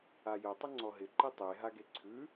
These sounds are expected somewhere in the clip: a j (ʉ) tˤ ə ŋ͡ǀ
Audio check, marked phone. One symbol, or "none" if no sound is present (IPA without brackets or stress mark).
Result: ə